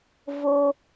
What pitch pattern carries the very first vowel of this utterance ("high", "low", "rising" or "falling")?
high